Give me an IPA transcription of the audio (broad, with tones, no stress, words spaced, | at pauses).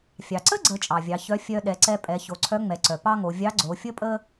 fʲɑ˩ǀə˥ɡ͡ǀə˩˧ t͡ʃʼɑ˩vʲɑ˩˧çœ˧˥ fʲœ˧ ɗɛ˩˧ǀɛ˧ pʼɛ˩˧ ço˩˧ǀʰœ˧˥ ŋ͡mɛ˩˧ǀœ˩ pɑ˥ŋo˩˧ vʲɑ˧˥ɡ͡ǀo˩˧fʲə˥pʼə˥